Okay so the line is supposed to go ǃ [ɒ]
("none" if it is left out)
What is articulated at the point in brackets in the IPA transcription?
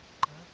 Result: ʌ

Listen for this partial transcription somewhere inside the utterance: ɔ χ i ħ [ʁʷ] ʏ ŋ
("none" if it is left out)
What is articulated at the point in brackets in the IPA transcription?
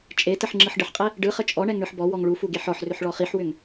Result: w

